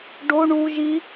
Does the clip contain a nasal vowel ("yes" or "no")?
no